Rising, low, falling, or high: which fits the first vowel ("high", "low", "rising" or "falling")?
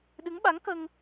rising